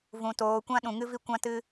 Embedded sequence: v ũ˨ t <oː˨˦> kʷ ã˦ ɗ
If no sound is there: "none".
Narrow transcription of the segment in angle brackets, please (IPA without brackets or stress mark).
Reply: oː˨˦